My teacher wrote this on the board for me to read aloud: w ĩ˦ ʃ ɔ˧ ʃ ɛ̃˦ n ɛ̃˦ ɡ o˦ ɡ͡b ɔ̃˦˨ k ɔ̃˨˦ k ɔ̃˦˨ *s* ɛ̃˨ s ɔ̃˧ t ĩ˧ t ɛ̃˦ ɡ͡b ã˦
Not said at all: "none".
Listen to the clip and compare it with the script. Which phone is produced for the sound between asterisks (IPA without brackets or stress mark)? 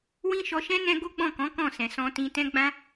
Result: s